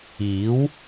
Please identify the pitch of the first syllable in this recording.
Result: rising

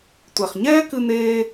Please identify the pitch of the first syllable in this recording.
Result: low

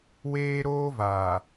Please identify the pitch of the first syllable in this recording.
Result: high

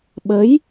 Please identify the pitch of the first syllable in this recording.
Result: rising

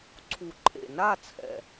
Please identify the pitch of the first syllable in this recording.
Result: low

